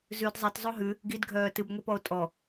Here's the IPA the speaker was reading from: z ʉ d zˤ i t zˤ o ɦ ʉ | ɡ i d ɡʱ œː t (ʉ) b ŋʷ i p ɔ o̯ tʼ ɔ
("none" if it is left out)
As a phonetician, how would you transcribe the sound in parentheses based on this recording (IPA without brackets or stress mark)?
ɨ